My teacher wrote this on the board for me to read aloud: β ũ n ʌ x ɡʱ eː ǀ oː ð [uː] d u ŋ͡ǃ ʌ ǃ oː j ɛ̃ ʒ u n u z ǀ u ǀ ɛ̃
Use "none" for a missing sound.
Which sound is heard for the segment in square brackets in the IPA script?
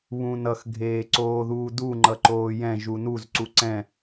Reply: uː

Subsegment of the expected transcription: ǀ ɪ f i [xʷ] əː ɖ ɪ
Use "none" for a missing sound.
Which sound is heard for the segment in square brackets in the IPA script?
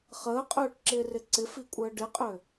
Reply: kʷʼ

